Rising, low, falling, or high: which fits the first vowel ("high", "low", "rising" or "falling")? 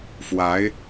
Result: rising